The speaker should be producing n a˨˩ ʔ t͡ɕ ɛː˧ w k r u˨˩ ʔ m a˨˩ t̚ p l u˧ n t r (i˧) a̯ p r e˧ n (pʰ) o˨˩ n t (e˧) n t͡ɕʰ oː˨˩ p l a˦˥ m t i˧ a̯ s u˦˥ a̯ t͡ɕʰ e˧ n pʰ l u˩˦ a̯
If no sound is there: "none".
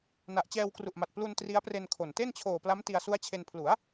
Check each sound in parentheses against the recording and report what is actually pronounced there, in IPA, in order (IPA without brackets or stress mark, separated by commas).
i˦˥, kʰ, e˥˩